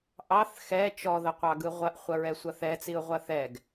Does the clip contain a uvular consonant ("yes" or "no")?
yes